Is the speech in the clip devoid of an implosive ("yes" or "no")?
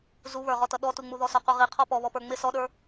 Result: no